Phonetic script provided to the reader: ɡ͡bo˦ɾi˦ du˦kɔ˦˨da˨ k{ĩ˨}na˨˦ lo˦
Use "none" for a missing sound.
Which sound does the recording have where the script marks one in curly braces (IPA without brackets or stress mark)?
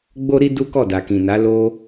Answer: ĩ˨